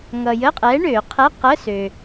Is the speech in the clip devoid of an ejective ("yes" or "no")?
no